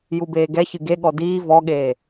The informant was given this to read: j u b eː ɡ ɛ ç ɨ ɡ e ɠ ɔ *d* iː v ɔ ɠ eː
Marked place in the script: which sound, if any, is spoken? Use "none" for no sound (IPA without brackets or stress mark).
d